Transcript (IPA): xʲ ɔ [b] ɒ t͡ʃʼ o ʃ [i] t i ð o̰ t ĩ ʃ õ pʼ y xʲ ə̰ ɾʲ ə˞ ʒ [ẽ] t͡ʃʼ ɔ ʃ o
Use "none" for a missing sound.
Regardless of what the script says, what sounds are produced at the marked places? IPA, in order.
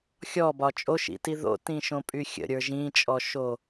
b, ḭ, ĩ

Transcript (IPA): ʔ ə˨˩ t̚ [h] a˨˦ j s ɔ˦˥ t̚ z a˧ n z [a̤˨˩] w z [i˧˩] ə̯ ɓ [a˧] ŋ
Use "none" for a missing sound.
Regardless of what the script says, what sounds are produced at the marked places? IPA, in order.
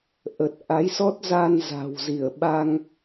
ʔ, a̤˨˩, i˧˩, a˧

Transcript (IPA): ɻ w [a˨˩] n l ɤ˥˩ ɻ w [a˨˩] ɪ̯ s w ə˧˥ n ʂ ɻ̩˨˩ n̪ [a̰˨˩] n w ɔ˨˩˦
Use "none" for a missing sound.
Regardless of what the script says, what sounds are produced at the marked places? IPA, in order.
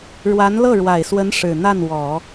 a˧˥, a˨˩, a˥˩

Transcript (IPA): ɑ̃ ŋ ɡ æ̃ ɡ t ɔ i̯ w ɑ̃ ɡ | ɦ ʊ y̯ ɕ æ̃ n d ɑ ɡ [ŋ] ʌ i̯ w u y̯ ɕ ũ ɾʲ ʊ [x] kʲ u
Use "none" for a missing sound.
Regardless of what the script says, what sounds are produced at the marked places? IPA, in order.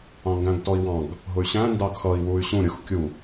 x, x

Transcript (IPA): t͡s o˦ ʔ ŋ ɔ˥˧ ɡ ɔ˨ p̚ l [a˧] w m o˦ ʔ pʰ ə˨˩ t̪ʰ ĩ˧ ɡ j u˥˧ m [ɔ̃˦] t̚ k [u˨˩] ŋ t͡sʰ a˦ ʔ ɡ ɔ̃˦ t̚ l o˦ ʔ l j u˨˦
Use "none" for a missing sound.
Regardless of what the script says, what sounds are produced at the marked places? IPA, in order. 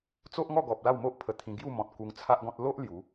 a˥˧, ɔ̃˨, u˧

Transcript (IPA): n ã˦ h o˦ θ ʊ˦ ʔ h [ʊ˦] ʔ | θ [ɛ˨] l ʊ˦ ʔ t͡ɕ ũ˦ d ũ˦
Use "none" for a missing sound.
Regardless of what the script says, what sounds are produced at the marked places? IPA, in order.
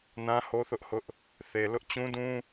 ʊ˦, e˨

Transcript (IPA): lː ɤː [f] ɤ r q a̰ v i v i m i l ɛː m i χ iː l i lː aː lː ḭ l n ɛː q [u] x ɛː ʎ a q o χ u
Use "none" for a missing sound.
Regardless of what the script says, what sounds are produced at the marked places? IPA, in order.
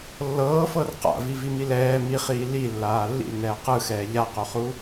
f, ɯ

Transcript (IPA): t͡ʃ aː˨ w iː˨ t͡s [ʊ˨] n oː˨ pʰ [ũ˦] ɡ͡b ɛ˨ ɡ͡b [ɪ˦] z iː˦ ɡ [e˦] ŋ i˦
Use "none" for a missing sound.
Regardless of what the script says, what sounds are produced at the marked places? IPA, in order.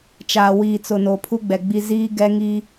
ʊ˨, u˦, i˦, ɛ˦

